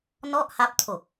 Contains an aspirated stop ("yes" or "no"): yes